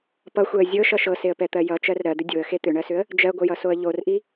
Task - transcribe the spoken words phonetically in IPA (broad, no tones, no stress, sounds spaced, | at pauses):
p ʌ xʷ ɛ ə̯ zʲ ɤ ʃ ʌ ʃ ɤ s e ə̯ p ɛ t̪ ɜ j ʌ t͡ʃ ɜ r ɾ ɜ d̪ ʏ dʲ o ə̯ x e t̪ ʏ ɳ ɜ s ʏ ə̯ | d͡ʒ ɜ ɡʷ ʌ j ʌ s o ə̯ ʎ o r ʔ i